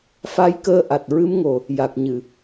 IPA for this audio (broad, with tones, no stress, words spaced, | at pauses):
fa˧˥jkəː˧ʔa˨˩t̚ ɹɨ˧˥mŋo˨˩ | ja˨˩k̚ɲɨ˨˩˨